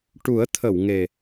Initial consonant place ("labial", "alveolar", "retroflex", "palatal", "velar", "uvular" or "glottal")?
retroflex